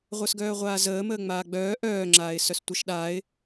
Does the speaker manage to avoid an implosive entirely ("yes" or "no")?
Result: no